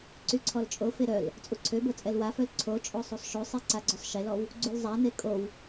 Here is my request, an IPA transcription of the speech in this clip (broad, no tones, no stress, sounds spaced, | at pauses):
ǀ y ǀʰ ɔ l t͡ʃʼ o f e ɾ œ l | t͡sʼ u ǀʰ ø b o t͡sʼ ɛ l w a f œ l ǀʰ o t͡ʃʼ o sˤ u sˤ ʃ o sˤ e ǀ a ɡ͡ǀ ø sˤ ʃ e l ɔ w | ɡ͡ǀ u l zˤ a n e kʼ o w